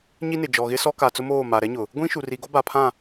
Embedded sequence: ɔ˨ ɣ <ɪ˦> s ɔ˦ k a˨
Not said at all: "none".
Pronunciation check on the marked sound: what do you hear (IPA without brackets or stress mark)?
ɪ˦